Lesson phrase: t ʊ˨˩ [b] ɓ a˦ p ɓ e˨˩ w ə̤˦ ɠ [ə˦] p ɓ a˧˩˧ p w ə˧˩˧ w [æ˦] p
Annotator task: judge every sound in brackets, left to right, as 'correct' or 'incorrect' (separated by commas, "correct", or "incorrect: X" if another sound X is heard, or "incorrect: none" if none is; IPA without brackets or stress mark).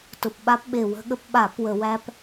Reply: incorrect: p, correct, correct